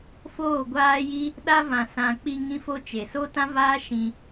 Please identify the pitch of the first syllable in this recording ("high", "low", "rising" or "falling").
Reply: falling